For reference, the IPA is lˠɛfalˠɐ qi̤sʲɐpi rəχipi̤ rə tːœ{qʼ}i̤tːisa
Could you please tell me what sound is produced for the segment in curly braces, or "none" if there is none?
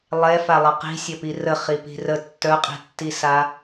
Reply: qʼ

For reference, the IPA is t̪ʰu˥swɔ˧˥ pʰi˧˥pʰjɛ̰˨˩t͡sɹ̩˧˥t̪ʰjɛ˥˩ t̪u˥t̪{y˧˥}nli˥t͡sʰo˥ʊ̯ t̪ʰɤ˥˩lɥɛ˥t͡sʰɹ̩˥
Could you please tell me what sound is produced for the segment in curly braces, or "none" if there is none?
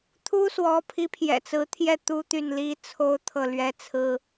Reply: y˥˩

